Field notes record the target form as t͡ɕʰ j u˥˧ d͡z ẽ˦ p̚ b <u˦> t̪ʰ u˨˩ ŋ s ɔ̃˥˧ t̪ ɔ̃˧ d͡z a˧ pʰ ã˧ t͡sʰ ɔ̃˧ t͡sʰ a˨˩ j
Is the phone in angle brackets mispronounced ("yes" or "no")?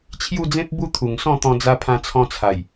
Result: no